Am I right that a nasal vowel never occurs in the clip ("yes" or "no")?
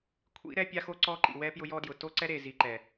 yes